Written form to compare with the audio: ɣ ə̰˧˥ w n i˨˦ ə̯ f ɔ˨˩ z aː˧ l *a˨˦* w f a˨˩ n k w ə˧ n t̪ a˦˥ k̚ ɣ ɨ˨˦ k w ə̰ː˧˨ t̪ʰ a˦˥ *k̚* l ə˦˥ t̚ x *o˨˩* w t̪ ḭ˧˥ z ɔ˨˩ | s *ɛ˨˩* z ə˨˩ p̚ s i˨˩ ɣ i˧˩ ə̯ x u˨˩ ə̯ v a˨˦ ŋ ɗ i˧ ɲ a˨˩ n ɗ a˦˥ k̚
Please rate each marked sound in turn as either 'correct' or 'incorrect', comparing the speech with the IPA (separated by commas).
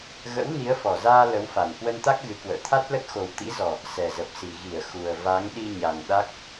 incorrect, incorrect, correct, correct